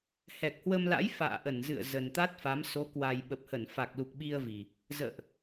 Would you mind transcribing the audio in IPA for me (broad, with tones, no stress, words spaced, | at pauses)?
hɛ˨˩k̚hwə˧mla̰˧˥j fa̰ː˧˨ʔə˧˩nzɨ̰˧˨ə̯ zə˨˩nt̪a˦˥t̚fa˨˦m so˨˦kwa˨˩jɓə˨˩p̚ hə˧˩nfa˨˩k̚lu˨˩k̚ ɓi˧ə̯vi˨˩ | zə̰ː˧˨ʔ